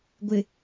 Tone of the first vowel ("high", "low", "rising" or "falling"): low